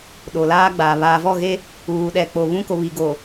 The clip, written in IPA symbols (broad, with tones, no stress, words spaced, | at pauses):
ɗo˨laː˦ɡ͡baː˨ βaː˨vɔ˦˨ɣe˦ | uː˨ɗɛ˨ k͡po˨βũ˦ko˨βi˨ ɡo˨